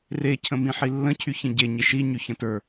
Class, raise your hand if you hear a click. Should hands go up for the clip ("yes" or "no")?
no